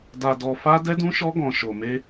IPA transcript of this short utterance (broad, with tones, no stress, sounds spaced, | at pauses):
d a˧ d ɔ˧ f a˦ d ɛ˦ d ũ˦ ʃ ɔ˦ ɡ ɔ̃˧ ʃ o˧ m e˦